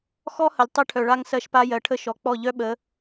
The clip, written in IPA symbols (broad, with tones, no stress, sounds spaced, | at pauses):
x ɔ˦ h ə˨ lʲ tˤ œ˦ ʈʰ œ˨ ɭ a˦ ŋ s ɜ˦ ʃ p a˦ j ɜ˨ ʈʰ ə˦ ʃ ɔ˨ k͡p ɔ˦˨ ʎ œ˦ ɓ ə˨˦